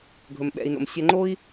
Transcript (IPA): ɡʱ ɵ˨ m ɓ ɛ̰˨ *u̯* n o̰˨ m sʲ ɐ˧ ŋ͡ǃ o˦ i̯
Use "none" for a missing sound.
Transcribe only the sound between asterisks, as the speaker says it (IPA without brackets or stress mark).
i̯